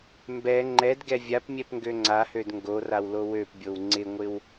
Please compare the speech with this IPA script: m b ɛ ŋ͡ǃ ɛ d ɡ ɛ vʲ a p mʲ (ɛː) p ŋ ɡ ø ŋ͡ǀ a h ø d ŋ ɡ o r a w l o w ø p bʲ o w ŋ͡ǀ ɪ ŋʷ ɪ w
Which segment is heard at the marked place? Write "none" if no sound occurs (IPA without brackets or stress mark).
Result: ɛ